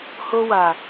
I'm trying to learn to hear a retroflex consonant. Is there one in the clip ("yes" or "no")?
no